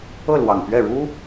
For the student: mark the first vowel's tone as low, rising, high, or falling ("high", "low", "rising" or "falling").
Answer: falling